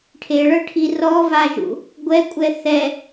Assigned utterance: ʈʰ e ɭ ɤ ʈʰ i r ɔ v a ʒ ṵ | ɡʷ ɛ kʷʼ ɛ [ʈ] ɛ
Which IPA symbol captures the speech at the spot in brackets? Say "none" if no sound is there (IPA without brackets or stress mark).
θ